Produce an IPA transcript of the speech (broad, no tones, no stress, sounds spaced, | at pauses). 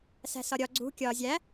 s æ̤ s ɒ ɾʲ ɒ ɡ͡ǀ ṳ kʲ ɒ zʲ æ